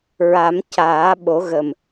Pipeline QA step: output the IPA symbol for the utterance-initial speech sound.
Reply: ɹ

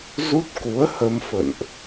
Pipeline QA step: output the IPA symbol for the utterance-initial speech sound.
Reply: z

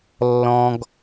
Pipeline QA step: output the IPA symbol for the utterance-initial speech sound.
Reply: lː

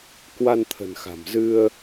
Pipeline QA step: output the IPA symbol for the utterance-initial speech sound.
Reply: k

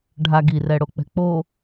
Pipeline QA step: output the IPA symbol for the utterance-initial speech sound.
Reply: ɖʱ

